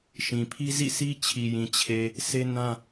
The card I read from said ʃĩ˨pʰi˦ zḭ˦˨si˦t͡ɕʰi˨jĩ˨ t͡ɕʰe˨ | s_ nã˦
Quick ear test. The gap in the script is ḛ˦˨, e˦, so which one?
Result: e˦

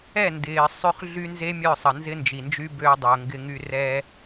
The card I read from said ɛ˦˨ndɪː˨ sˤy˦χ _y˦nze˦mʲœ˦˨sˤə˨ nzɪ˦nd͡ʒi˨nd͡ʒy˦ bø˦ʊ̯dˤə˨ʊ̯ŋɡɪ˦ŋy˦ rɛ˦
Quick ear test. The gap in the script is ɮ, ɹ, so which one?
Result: ɮ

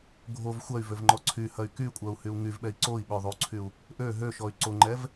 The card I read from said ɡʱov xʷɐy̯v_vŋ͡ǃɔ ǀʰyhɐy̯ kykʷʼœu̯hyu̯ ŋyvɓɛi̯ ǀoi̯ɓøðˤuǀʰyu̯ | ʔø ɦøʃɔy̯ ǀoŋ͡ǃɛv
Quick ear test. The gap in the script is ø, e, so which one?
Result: ø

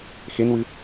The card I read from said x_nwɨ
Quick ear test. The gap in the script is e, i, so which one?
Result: e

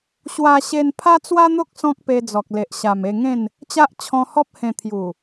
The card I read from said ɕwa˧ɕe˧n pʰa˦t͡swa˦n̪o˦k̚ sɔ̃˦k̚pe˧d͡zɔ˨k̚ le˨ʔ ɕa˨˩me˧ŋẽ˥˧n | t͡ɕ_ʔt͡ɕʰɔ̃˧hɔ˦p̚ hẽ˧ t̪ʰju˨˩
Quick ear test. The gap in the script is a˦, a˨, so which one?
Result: a˦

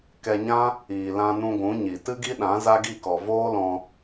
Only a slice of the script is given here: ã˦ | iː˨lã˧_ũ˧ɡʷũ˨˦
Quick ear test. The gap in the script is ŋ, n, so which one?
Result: n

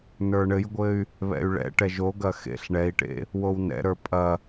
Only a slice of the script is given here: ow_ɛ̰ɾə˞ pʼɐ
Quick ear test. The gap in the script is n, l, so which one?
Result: n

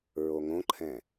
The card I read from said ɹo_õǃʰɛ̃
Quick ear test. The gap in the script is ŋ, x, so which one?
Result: ŋ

